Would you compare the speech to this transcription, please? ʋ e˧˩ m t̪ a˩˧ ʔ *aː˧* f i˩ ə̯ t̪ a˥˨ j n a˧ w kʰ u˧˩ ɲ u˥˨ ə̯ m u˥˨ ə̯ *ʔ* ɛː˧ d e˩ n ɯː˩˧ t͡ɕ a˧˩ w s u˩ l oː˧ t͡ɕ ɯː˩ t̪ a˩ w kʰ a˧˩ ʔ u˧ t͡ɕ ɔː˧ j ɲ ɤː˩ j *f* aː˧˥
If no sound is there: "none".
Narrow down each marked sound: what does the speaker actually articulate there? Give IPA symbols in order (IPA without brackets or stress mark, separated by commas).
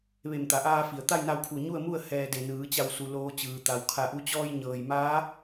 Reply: aː˧, h, m